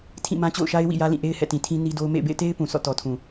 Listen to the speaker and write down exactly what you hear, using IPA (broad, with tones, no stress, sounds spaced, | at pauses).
tʰ ĩ˦˨ m ã˦ t͡ɕ o̰˦˨ ʊ̯ ʃ a˦ ɪ̯ w ḭ˦˨ j ä˦ l ĩ˦˨ ʔ e˦ ɪ̯ h ɛ̰˦˨ t ĩ˨ tʰ ĩ˦ n i˦ d o˦ ʊ̯ m ḛ˦˨ ɪ̯ b ḛ˦˨ ɪ̯ t e˦ ɪ̯ p ũ˨ s ɔ̰˦˨ t ɔ˨ tʰ ũ˨